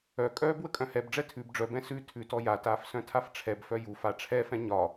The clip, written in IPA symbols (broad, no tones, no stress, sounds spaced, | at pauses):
œ kʼ œː b w ə kʼ œ̃ h ɛ b ɖ͡ʐ ɛ tʰ ʉ b ɖ͡ʐ œ b ɛ̃ s ʉ tʰ ʉ t ɔ j a t aː f s œ̃ tʰ a f ʈ͡ʂʰ ɛ b f œ j u f a ʈ͡ʂʰ ɛ f ɛ̃ ɲ ɒ